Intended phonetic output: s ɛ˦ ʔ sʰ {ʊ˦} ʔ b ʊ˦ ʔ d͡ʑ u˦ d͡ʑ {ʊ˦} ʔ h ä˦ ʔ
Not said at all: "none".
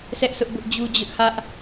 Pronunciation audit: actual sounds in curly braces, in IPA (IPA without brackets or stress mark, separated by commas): ʊ˦, ʊ˦